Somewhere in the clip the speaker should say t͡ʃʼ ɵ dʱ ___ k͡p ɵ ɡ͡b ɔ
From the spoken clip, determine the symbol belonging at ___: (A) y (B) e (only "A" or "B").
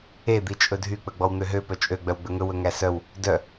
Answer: A